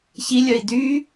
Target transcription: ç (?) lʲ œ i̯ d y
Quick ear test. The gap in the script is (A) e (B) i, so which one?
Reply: B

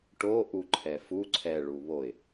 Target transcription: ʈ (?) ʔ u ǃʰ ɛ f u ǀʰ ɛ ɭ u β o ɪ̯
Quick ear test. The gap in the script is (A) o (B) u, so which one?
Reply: A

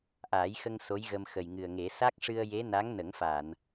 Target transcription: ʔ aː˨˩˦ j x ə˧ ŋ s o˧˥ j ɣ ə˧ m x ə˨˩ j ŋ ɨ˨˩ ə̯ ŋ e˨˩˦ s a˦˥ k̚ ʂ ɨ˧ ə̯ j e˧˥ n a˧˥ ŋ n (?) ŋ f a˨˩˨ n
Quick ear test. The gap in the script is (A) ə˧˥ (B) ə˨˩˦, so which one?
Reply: B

